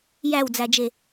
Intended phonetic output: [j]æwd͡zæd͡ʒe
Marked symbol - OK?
yes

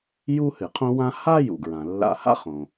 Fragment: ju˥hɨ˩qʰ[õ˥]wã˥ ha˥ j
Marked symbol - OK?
yes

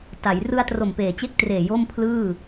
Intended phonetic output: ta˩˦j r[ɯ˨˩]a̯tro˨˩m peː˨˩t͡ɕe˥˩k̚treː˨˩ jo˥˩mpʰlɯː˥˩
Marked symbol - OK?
no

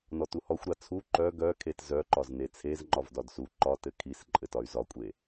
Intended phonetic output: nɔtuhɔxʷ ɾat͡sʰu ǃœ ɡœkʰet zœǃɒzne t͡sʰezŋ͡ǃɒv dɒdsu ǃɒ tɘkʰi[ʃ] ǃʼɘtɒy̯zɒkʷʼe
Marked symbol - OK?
no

